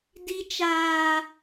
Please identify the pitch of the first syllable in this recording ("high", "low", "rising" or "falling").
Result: high